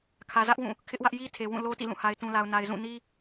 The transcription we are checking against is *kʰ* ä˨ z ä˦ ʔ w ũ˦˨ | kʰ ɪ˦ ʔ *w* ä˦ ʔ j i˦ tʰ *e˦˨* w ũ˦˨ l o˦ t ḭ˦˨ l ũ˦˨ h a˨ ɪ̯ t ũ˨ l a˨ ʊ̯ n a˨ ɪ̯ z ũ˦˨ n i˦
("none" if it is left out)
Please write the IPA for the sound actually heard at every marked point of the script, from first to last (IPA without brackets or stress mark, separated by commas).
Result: kʰ, w, e˨